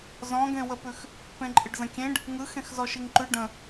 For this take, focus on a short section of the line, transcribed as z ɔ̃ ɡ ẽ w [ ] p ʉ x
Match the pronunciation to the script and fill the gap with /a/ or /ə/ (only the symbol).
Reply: ə